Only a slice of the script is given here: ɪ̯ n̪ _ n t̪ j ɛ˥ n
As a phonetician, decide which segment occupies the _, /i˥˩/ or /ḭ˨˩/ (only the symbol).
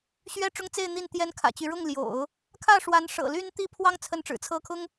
i˥˩